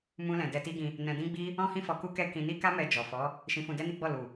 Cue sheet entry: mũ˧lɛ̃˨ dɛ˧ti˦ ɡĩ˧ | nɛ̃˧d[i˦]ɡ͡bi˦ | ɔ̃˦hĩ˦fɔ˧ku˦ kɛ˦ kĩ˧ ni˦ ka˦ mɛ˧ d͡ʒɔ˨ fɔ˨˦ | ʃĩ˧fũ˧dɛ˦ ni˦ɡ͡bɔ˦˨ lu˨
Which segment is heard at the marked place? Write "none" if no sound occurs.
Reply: ĩ˦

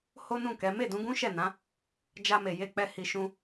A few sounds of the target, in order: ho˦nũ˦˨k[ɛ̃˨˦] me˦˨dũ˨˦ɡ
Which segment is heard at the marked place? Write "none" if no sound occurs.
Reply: ɛ˨˦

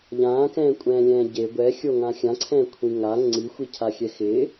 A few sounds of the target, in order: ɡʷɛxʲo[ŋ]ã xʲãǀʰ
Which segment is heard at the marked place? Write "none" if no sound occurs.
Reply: ŋ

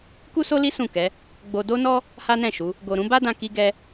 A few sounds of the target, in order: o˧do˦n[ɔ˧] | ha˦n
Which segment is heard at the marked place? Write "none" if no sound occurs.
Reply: ɔ˦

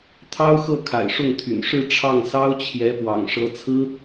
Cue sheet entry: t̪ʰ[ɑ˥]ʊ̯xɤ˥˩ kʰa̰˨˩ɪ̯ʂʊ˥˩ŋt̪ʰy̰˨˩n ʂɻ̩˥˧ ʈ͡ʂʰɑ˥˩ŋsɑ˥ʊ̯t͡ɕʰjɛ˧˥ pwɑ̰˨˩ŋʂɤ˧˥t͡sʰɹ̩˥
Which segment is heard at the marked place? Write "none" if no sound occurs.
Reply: ɑ˥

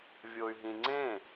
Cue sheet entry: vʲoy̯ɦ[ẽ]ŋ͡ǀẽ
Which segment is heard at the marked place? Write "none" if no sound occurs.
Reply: ĩ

